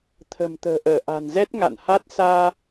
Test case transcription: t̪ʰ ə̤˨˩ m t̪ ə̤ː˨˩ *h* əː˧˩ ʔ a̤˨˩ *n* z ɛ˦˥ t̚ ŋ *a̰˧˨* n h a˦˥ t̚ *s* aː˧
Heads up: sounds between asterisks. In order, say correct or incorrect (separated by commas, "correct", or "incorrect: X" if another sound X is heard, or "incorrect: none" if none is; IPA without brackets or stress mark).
incorrect: ʔ, correct, correct, correct